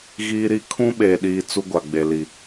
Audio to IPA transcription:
ɣ iː˦ ɾ i˦ kʰ ũ˦ ɓ eː˨ ɗ iː˨ t͡s u˦ ɡʷ a˨ ɡ͡b e˨ l i˨

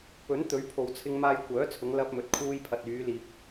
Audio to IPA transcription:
p ɵ˨˥ n t̪ ɵ˨˥ ɥ pʰ o˨˧ w t͡sʰ ɪ˧ ŋ m aː˧ j kʷ œː˨˥ t͡sʰ ʊ˨˧ ŋ l ɐ˧ p̚ m ɵ˨˥ t̚ kʰ uː˧ j pʰ ɐ˨ t̚ yː˨˧ l iː˨ p̚

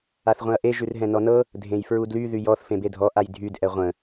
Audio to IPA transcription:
a θ ʁʷ ẽ ɐ̯ ʔ e ʒ ʉ r ɦ ɛ̃ n ɔ n ɤ | dʱ ẽ j f ɹ u d l y ð y j ɔ θ f ẽ b e dʱ ɔ ʔ a j dʱ y d ʔ ɛ ʁʷ ə̃

